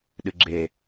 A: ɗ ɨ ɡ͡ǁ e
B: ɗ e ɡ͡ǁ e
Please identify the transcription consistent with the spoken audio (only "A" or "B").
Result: A